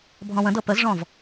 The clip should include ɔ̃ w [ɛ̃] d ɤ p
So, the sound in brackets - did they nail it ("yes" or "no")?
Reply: no